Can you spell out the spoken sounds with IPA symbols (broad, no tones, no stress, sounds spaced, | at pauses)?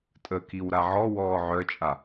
tʼ ə k i w ɾ a ʕ ɔ w ɔː ʕ œ t͡ʃʼ a